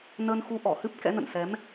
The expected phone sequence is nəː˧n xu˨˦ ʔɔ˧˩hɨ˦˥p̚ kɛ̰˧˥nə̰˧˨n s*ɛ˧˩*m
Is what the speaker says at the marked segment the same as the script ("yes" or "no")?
no